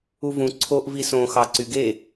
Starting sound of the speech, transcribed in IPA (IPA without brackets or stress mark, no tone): u